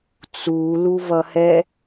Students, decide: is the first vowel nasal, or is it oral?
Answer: oral